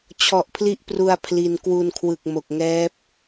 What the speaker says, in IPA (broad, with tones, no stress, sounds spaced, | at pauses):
t͡ɕʰ ɔ˨˩ ʔ pʰ l i˦˥ ʔ p r u˧ a̯ pʰ l i˧ n k w u˧ n kʰ w ɯ˨˩ k̚ m o˨˩ k̚ ŋ ɛː˦˥ p̚